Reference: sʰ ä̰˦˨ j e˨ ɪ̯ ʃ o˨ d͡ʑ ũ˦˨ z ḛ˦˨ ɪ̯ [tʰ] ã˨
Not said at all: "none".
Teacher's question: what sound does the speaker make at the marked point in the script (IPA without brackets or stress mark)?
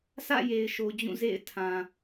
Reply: tʰ